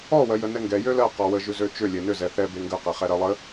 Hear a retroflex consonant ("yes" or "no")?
no